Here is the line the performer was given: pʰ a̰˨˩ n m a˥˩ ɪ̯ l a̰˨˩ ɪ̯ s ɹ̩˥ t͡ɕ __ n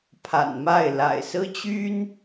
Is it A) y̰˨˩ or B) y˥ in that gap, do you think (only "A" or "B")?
B